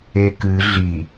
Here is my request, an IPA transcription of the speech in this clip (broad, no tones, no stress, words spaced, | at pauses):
ekɨ ɮi